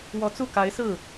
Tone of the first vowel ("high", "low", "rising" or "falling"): rising